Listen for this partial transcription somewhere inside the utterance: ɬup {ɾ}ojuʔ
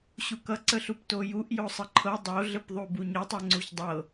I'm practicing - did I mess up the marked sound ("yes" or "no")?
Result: yes